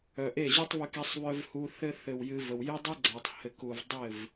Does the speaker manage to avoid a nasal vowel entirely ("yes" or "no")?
yes